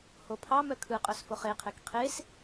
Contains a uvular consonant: yes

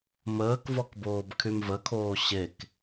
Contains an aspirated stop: yes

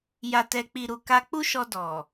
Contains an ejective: no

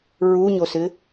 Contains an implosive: no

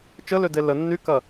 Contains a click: no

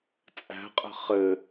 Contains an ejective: yes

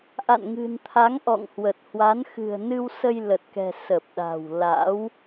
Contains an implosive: yes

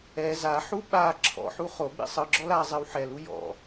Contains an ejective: no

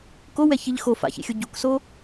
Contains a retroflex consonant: no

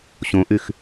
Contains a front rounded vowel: yes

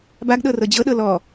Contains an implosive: yes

